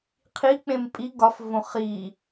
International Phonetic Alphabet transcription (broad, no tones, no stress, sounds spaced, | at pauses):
qʰ i k͡p ẽ m pʼ i ɡ ɒ f v õ χ i